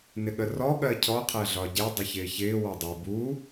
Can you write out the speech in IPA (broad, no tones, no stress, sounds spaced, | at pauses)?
n ɪ ɠ ə r ɔ ɠ ɜ cʰ ɔ qʰ æ ɮ ɒ ɟ ɛ dˤ ɪ ç ɪː ç ɪː w ɒ dˤ i b u